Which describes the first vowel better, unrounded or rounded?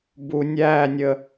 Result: rounded